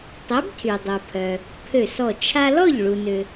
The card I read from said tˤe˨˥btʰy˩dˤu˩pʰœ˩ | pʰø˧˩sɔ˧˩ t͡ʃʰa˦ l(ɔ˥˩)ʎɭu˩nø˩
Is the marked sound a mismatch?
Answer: no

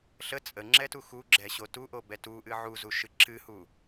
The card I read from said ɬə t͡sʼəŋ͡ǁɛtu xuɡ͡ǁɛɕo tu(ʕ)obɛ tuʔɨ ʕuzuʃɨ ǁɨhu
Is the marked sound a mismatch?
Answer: yes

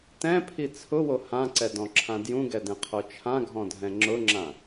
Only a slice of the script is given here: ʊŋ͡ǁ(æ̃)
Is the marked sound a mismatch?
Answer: yes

